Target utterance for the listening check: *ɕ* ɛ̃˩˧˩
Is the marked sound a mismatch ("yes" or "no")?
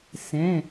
yes